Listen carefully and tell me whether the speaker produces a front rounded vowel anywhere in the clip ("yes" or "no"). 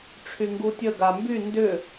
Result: yes